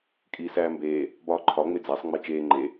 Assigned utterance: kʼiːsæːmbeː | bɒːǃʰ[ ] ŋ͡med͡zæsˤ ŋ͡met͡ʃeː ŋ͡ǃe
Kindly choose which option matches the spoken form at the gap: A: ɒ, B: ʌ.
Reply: A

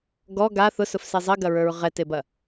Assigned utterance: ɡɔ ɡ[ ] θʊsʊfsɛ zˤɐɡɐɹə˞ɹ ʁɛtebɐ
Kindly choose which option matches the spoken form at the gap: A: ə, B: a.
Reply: B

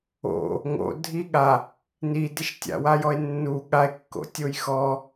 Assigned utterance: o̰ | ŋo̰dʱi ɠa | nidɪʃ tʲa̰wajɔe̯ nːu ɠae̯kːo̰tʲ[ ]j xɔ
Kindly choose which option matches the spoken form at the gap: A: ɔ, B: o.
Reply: B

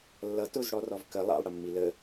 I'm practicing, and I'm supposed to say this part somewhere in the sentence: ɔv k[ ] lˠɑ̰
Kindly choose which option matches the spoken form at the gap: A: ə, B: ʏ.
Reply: A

